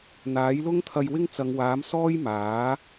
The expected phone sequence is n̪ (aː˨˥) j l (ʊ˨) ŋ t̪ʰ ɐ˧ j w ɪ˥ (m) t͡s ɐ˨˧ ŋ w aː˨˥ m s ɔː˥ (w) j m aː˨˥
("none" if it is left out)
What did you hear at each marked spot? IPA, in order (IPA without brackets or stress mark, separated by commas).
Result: aː˨˥, ʊ˥, ŋ, none